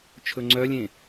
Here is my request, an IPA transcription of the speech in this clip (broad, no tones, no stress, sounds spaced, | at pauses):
t͡ʃʰ ɵ ŋ͡ǀ œ lʲ ẽ